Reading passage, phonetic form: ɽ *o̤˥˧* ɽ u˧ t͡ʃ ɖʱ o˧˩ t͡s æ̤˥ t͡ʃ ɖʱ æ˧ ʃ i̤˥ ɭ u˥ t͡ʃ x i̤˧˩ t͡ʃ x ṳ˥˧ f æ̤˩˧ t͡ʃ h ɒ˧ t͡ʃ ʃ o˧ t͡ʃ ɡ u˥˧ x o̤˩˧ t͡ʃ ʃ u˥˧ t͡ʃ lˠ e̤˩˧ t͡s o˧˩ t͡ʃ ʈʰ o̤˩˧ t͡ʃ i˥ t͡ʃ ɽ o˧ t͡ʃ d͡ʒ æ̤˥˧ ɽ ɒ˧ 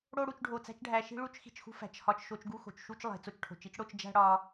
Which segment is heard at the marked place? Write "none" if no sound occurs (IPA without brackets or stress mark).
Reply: o˥˧